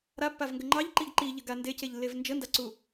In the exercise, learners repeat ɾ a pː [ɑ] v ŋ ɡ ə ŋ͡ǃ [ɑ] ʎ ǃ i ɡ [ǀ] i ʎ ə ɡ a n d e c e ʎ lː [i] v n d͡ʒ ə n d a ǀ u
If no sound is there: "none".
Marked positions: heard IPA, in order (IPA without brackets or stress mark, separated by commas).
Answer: a, ɑ, ǃ, e